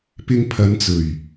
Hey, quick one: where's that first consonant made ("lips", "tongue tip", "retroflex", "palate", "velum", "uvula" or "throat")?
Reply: lips